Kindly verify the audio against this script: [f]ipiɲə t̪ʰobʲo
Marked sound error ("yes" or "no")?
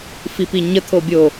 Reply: no